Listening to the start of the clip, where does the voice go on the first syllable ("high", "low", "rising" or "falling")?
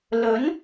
rising